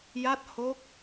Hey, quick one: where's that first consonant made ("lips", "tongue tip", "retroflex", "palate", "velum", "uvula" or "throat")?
palate